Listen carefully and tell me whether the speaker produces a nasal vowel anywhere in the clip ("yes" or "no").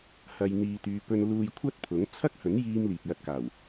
no